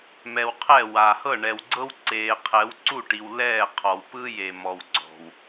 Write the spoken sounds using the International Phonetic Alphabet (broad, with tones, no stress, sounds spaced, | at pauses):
m ɛ˨ w qʰ ɛ˦˨ w a˨ h ɤ˦˨ ɳ ɛ˨ w ɡ͡ǀ ɤ˦ w ǀ eː˨ qʰ ɛ˨˦ w ǀ u˦˨ ʈ i˨ w l ɛː˦˨ qʰ ɔ˨ w p ɯ˦ j e˨ m ɔ˨ w ɡ͡ǀ ɔ̤˨ w